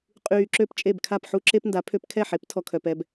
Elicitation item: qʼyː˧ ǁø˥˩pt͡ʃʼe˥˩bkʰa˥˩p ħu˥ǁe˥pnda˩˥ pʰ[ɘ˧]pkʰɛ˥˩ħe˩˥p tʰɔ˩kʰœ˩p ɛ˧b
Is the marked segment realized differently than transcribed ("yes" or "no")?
yes